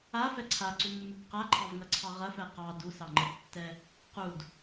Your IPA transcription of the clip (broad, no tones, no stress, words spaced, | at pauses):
afɛ ǀʰaǀumːub qaǃʰɑvŋɐǀʰɑ ʁɐfɛ qɑ dusɑŋ͡ǃɛdtːɛ | qud